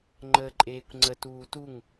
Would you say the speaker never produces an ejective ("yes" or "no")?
no